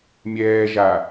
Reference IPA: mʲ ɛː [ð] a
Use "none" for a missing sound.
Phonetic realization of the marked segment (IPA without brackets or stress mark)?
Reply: ʒ